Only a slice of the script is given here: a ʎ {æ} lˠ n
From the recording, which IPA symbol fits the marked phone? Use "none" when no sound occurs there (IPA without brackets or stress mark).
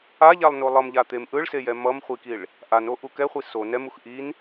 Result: a